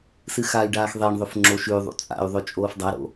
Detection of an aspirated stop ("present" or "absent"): absent